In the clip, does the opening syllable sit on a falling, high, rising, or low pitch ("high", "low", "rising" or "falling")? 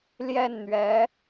falling